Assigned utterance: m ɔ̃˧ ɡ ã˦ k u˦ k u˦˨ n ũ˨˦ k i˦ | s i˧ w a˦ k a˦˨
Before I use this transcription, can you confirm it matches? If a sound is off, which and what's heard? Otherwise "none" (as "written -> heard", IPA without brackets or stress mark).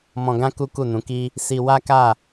none